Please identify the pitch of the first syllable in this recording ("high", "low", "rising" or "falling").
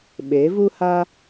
rising